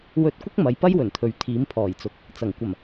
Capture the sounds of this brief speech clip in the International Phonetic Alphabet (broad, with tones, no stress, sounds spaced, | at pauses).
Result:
w ɵ˧ t̚ kʷ ɪ˥ k̚ m ɐ˨˧ j p ɐ˥ j w ɵ˨˩ n t̪ʰ ɵ˨˥ ɥ t̪ʰ iː˨˥ m pʰ ɔː˨˩ j t͡s ʊ˨ k̚ | t͡s ɐ˨˩ ŋ kʷ ɐ˨˩ m